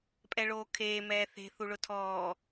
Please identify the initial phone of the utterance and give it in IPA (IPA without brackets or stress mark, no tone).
pʼ